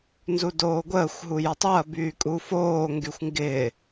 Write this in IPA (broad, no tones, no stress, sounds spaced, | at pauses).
n z u d oː ɡʷ əː xʷ ɦ u j ʌ tˤ o ɐ̯ b yː kʼ u f oː ŋ ɡ y xʷ ŋ ɡ ɪː